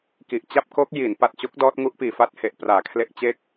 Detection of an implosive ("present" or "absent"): absent